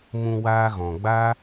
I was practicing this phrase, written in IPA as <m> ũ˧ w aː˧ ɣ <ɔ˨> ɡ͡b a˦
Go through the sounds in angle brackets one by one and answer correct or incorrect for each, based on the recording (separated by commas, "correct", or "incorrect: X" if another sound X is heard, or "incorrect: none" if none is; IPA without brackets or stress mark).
correct, incorrect: ɔ̃˨